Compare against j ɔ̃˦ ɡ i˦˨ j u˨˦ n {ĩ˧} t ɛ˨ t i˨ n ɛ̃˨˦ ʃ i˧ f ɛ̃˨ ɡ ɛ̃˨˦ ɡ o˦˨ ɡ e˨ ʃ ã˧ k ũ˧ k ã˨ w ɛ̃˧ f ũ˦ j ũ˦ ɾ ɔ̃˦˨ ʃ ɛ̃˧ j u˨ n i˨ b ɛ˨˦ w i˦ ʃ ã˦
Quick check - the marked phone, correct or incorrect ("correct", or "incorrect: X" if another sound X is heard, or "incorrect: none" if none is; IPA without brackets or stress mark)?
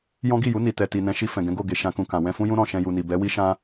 incorrect: i˧